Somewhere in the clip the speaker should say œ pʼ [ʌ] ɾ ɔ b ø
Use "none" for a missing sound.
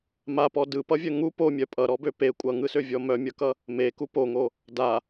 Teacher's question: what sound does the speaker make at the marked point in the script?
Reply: ʌ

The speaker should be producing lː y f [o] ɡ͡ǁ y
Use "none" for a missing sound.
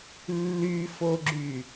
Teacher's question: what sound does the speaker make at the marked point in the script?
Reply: o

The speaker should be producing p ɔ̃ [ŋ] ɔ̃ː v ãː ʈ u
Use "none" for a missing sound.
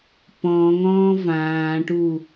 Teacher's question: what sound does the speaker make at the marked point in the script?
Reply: ŋ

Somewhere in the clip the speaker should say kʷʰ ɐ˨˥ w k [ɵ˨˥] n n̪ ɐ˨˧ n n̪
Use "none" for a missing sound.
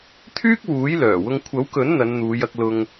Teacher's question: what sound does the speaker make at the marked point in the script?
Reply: ɵ˨˥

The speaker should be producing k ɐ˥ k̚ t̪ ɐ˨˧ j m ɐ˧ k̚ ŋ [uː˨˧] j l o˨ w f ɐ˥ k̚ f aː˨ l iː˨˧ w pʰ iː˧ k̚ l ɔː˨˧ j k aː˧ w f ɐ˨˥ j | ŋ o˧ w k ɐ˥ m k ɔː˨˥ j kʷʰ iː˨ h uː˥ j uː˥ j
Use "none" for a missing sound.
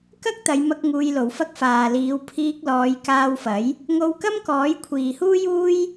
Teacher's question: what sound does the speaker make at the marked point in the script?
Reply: uː˧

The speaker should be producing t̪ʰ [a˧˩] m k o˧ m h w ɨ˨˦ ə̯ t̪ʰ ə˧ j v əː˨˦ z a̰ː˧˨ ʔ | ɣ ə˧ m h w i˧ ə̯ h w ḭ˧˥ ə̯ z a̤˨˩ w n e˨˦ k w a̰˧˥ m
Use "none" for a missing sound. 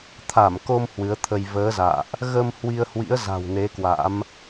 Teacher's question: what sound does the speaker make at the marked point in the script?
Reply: a˧˩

